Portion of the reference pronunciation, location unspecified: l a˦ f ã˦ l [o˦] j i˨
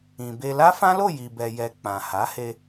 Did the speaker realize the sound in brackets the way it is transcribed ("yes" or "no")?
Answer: no